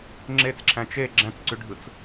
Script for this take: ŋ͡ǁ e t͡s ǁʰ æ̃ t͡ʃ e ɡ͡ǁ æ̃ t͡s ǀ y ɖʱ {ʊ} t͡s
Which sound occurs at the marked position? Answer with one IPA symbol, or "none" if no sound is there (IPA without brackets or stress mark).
ɯ